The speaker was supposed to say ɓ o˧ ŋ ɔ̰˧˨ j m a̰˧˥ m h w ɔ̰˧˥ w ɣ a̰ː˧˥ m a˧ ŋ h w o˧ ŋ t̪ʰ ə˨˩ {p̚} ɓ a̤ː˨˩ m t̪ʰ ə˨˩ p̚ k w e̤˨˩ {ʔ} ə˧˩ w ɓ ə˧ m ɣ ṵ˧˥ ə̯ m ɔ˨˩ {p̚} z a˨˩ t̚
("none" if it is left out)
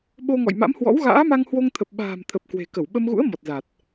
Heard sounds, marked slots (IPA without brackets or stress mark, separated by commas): p̚, k, t̚